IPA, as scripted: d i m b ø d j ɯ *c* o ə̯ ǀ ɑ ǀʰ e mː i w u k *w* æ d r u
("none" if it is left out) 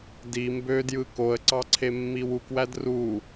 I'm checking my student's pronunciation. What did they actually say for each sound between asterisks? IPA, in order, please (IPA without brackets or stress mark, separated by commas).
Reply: k, w